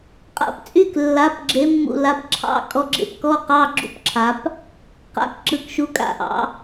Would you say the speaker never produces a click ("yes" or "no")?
no